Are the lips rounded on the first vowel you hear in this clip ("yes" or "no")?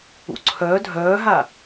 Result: yes